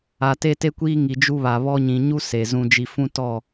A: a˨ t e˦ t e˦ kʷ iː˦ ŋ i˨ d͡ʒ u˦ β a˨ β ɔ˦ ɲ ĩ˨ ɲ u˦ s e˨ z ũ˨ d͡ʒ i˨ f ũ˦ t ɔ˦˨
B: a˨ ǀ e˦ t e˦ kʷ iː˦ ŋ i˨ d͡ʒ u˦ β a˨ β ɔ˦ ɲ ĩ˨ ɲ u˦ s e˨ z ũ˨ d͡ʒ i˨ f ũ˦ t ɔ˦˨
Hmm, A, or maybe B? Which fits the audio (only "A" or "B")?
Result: A